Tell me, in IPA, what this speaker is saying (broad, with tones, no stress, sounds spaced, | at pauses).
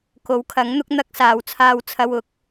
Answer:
k o˨˥ w kʰ ɐ˨˥ ŋ n̪ ʊ˥ k̚ n̪ ɐ˥ k̚ s aː˨˧ w t͡sʰ aː˥ w t͡sʰ ɐ˥ w ʊ˧ k̚